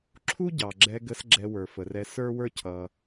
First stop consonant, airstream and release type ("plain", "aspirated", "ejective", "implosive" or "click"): click